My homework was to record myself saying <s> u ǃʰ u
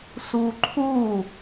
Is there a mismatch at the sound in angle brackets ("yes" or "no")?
no